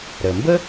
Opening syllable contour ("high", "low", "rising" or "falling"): low